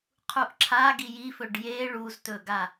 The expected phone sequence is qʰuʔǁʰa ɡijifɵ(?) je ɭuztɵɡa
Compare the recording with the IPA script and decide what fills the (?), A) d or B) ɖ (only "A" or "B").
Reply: B